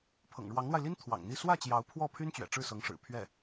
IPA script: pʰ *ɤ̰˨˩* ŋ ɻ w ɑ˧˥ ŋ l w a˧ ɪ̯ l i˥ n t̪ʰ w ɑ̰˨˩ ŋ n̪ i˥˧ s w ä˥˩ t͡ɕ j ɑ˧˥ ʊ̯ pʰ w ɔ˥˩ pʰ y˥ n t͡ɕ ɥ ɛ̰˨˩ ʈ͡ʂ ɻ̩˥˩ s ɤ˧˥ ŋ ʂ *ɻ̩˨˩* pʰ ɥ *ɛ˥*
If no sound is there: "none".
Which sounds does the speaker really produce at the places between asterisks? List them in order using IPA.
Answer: ɤ̰˨˩, ɻ̩˨˩, ɛ˥˩

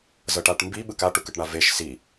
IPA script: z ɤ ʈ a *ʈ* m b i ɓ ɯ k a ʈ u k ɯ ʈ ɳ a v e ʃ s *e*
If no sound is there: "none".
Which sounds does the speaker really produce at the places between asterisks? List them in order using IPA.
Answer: ʈ, i

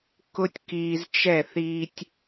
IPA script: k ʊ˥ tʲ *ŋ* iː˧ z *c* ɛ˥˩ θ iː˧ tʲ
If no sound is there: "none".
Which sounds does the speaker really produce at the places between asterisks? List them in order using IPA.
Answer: k, t͡ʃ

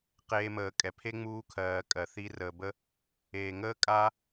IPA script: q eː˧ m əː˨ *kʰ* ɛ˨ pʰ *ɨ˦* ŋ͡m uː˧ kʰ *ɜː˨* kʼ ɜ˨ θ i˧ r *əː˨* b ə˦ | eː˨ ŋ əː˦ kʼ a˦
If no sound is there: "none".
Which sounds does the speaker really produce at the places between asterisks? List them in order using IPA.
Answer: kʼ, e˦, ɜː˨, əː˨

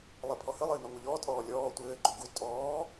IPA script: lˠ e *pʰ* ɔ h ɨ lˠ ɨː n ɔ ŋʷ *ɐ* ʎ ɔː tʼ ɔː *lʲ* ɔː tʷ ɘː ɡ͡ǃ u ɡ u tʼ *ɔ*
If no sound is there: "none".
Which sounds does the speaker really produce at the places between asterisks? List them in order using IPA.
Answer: pʰ, ɐ, lʲ, ɔː

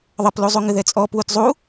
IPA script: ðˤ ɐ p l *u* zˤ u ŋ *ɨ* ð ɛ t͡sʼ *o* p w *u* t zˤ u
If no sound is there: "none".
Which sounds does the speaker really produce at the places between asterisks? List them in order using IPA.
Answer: u, ɨ, ɔ, u

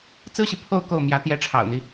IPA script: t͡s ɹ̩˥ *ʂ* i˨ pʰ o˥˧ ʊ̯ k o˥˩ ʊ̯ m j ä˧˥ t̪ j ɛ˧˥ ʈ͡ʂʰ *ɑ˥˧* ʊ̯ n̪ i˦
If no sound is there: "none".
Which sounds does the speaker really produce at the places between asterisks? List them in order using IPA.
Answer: ɕ, ɑ̰˨˩

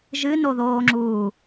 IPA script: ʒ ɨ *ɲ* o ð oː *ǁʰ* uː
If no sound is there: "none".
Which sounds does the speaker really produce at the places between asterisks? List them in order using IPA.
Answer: n, ŋ͡ǁ

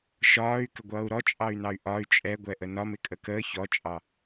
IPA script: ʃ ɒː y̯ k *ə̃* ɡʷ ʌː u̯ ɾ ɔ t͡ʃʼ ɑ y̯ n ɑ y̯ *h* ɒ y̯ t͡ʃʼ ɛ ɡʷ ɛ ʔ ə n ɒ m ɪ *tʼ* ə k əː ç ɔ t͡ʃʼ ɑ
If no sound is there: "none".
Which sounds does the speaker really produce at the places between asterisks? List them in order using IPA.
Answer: ə, ʔ, kʼ

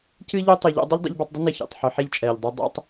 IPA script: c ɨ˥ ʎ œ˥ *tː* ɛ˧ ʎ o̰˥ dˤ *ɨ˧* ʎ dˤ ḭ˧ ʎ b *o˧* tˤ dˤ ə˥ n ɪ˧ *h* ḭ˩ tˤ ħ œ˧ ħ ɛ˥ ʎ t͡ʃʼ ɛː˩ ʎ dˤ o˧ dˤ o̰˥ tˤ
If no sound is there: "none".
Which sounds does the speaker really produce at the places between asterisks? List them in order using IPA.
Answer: tˤ, ɨ˥, o˧, ç

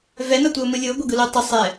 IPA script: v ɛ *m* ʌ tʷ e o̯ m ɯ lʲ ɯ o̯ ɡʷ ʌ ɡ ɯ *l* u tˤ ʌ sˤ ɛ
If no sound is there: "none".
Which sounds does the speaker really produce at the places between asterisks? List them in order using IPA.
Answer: n, l

